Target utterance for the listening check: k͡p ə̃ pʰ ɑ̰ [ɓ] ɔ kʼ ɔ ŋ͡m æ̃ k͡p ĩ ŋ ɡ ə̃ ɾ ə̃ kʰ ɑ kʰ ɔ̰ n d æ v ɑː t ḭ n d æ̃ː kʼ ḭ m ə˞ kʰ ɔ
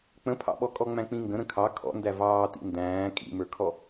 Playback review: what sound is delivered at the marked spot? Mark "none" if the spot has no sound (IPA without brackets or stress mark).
ɓ